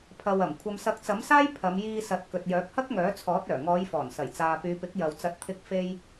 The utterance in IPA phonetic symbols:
pʰ ɐ˨ w ɐ˨˩ m kʷʰ ɐ˨ m s ɐ˨˥ k̚ t͡s ɐ˨˥ m s aː˥ j pʰ ɐ˨˧ m j iː˧ s ɐ˨˥ t̚ k ɵ˨ t̚ j œː˨˥ k̚ h ɐ˥ k̚ ŋ œː˨˥ t͡sʰ ɔː˨˥ t̚ œː˨˩ ŋ ɔː˨˧ j f ɔː˨˩ n s ɐ˨˩ j t͡s aː˨ p yː˨˧ p ɪ˨˥ k̚ j ɐ˨ w t͡s ɐ˨˥ t̚ t̪ʰ ɪ˧ k̚ f e˥ j

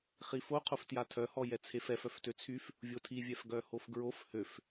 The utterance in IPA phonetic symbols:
χ i f o qʰ o f t j a tʰ œ h ɔ j ɛ t͡sʰ e f ɛ f œ f t ø t͡sʰ y f | vʲ o tʰ i vʲ ɛ f ɡ œ h o f ɡ ɹ o f h ø f

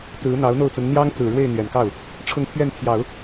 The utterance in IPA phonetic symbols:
t͡s ɹ̩˧˥ n̪ ɑ˧˥ ʊ̯ n̪ o˥˩ ʊ̯ t͡s ə˧˥ n n̪ j ɑ˥ ŋ t͡s ɹ̩˨˩ ɻ w e˥˩ ɪ̯ n̪ ɥ ɛ˨˩ n k ɑ˥˩ ʊ̯ | ʈ͡ʂʰ ʊ˥˧ ŋ pʰ ɥ ɛ˥˩ n pʰ j ɑ˨˩˦ ʊ̯

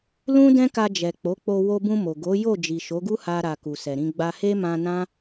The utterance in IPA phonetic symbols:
l ũ˦ d ɛ̃˦ k a˧ d͡ʒ ɛ˨ k͡p o˨˦ k͡p o˧ w o˧ b ũ˧ m o˨ ɡ o˨˦ j o˦˨ d͡ʒ i˨ ʃ o˨˦ ɡ u˦ h a˦ ɾ a˧ k u˨ s ɛ˨ ɾ ĩ˧ ɡ͡b a˦ h e˦ m ã˧ n ã˦

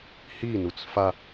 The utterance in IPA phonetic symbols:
h i n u t͡s f a

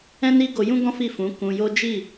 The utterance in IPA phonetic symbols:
ɛ̃˦ n i˦ ɡ o˧ j ũ˦ ɡ ɔ̃˦ f i˦˨ f ũ˨˦ k ũ˧ j o˦ d͡ʒ i˦˨

